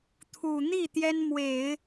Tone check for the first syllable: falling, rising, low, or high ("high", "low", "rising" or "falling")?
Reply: low